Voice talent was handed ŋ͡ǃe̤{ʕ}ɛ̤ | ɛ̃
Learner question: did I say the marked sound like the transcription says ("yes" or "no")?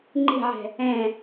yes